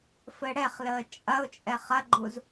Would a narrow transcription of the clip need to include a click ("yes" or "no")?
yes